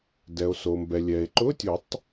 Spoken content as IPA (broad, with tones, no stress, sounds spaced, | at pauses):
d ɛ˩ o̯ s o˩ m b ɛ˩ lʲ ɛ˩ e̯ ǃ ʊ˧˥˧ tʲ ʊ˨˩˦ tˤ